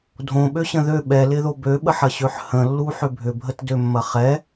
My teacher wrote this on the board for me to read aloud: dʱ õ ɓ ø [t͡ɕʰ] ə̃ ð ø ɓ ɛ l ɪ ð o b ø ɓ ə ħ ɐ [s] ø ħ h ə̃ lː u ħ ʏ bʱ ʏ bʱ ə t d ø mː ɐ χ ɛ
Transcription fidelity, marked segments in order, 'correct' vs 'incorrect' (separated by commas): incorrect, incorrect